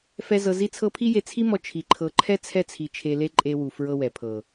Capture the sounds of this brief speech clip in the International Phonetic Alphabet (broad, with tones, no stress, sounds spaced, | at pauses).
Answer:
f ɛ˦ z ɤ˧ z i˦ t͡sʰ ɤ˦ pʰ i˦ j e˧ t͡sʰ i˦ m ɔ˧ t͡ʃʰ i˧ ǃʰ ɤ˧ ǃʰ ɛ˦ t͡sʰ ɛ˦ t͡sʰ i˧ t͡ʃʰ e˧ l e˦ ǃʼ e˧ w u˨ f ɹ ɤ˦ w ɛ˨ pʰ ɤ˨